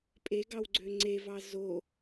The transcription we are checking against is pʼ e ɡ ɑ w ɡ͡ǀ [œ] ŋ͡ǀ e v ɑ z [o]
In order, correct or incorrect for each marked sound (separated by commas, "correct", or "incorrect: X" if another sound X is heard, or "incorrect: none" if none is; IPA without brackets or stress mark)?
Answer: incorrect: ø, correct